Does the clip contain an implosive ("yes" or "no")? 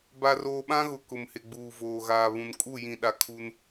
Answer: yes